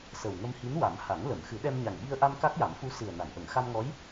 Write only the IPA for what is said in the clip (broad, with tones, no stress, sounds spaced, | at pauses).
s ə˨˩ w ŋ ə˧ m h i˧˥ n w a˨˩˦ m h a˨˩˦ ŋ l ə˨˩˨ m x ɨ˨˩˦ ɗ ɛ˧ m ɲ a˨˩ ŋ ɓ i˧ ə̯ ʔ a˧ m k a˦˥ k̚ j a˨˩˦ m f u˧˥ s ɨ˨˩ ə̯ n a˨˩˨ n ʔ ə˨˩˨ ŋ x a˧ m ŋ ɔ˧˥ j